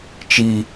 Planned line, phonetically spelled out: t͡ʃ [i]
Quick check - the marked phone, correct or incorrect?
correct